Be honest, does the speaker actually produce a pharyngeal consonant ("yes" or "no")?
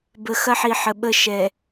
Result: yes